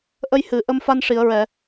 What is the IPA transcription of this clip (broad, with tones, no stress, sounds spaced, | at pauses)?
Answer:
ʔ ə˧ j h ɨ˨˩˨ ʔ ə˧ m f a˧ n ʂ i˨˩˨ ə̯ ɹ ɛ˨˩˨